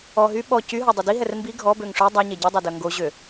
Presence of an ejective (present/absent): absent